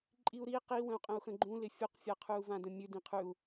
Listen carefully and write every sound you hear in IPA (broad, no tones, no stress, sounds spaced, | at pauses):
ǃʼ i u̯ ɾ i q i w ə̃ u̯ qʼ ə̃ u̯ x ə̃ ɡ͡ǃ ũ l ɪ fʲ u q fʲ a qʰ ʉ u̯ v ã d ə̃ mʲ ʉ d ĩ qʰ ʉ u̯